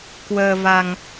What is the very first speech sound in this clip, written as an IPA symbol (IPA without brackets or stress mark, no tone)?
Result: k